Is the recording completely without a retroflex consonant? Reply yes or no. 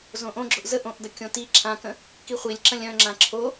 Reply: yes